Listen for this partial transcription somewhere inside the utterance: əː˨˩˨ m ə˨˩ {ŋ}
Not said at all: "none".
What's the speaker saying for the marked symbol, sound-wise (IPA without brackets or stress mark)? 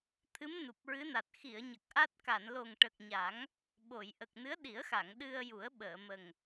ŋ